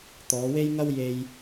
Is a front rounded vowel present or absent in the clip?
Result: absent